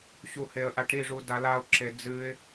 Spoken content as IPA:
ɕ u h e ə̯ ʔ a ʈ ɾ i ʐ u d a l a ʊ̯ ǁ e d͡z ɨ ɪ̯

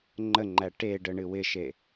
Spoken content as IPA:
ŋ͡ǃ ə ŋ͡ǃ æ ʈ e ɖ ə ɳ ɨ w ɪ ʃ e

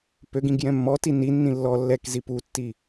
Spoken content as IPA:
p ø ɡ ĩ ɡ j ɛ̃ mː ɔ t i n i nː ĩ lː ɔ lː ɛ k z i p u tː i

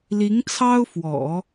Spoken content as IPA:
l i˧˥ ŋ t͡sʰ ɑ˥ ʊ̯ f w ɔ̰˨˩˦

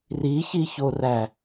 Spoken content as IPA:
r i ç i ç o r æ

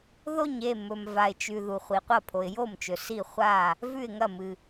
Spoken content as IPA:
ð o˥˩ ɲ e˥˩ m ɵ˩ m v a˩ ɪ̯ t͡ʃ ʉ˩ ð u˩ χʷ i˩ qʷ ɐ˥˩ pʰ o˩ ɪ̯ j o˥˩ m t͡ʃ ɵ˩ s i˥˩ χʷ a˥˩ | v ʉ˥˩ ɪ̯ ŋ ɐ˥˩ m ɨ˩

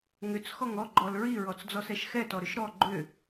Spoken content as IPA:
ŋ ʏ t͡s x ɔ ŋ ɔ ɡ͡ǃ ɔ l ɹ i ɹ ɔ t͡s d͡z ɔ s ɛ ʃ x ɛ t ɔ ɾ ʏ ʃ ɾ ɔ ɡ͡ǃ ʏ

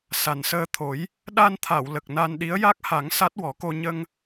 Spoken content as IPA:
s a˨˩ n s əː˧ t̪ʰ o˨˩˦ j | ɗ a˧ n t̪ʰ a˨˩˨ w l ə˨˩ k̚ n a˧ n ɗ i˧˥ ə̯ j a˦˥ k̚ h a˨˩˦ ŋ s a˦˥ t̚ w ɔ˨˩˦ k o˧ ɲ ə˧ ŋ

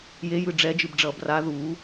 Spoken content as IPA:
j e j ɯ ɖ͡ʐ ɛ d͡ʒ ɯ b ɖ͡ʐ ʌː b r a ð u

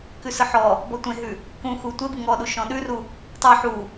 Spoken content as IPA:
k ʉ s ɯ ħ ɔ | b ɔ tʷ ẽ ɦ ʉ | k ũ x u tʷ e b ɯ ŋ ɔ ɗ u ʃ ɔ̃ ɗ ʉ r u | tˤ ɯ ħ u

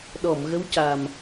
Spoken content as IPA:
ɗ ɔ˨˩˨ m ɣ ə˧˥ w c a˨˩ m

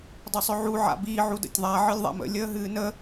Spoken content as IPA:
dˤ ʏ sˤ ʏ ʕ u ʕ a̰ b i ʕ u d ə̰ tʲ ðˤ a ʕ ɨ lʲ ðˤ a̰ m ə̰ lʲ əː ɦ ɨː n ə

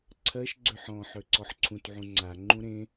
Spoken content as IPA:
ǀʰ ɜ ʃ ɡ͡ǀ ø ħ ɔ̃ ħ ø ǀ ɔ ħ ǀʰ ũ t ʕ ũ ŋ͡ǀ a ŋ͡ǃ ũ ɾ ẽ

